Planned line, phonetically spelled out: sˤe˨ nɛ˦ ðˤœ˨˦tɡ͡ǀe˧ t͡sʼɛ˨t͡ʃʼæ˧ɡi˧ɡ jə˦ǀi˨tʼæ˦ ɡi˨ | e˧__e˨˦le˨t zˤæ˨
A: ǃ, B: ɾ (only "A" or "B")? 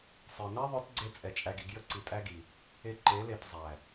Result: A